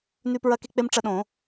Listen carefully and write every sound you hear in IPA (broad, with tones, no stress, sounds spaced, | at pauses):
n ʉ˦ p ɹ ɐ˦ k e˦ k͡p e˦ m ʈ͡ʂ ɐ˦ ɗ õ˨˩˦